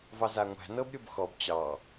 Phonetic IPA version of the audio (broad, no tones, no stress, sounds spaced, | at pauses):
v ɑ z a ŋʷ æ̤ n ɤ b ɾʲ o b x ɔ b t͡ɕ ɑ